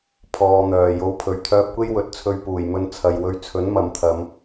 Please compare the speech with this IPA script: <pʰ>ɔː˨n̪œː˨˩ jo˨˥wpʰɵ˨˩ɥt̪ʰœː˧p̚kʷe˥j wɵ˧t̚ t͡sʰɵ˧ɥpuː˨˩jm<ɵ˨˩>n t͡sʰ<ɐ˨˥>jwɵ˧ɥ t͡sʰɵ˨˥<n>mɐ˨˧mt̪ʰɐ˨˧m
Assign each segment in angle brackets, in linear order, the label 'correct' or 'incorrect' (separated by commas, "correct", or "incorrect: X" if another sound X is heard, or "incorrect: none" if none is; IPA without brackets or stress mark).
correct, incorrect: ɵ˧, incorrect: ɐ˨, correct